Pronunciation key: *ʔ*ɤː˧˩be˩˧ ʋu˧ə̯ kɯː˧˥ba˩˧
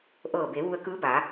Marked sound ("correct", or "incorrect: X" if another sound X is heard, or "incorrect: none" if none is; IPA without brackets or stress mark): correct